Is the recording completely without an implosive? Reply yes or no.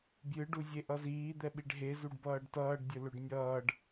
no